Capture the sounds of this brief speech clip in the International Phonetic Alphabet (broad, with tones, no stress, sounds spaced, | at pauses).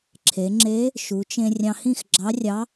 ǁʰ e˩˧ ŋ͡ǁ e˧˥ | ʃ u˩˧ t͡ʃ ẽ˧ rʲ ɑ̃˧ h ĩ˥˨ x ɡ͡ǁ ɑ˧˥ rʲ ɑ˧˥